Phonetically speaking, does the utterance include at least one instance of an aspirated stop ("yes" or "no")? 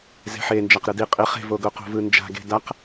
no